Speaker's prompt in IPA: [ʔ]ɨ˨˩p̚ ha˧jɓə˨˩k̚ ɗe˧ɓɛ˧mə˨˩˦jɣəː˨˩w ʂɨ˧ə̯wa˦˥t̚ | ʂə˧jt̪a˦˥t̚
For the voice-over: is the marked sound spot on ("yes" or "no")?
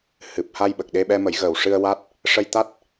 no